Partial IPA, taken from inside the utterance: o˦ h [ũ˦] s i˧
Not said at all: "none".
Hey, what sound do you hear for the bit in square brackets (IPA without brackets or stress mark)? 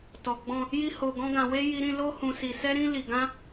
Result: ũ˧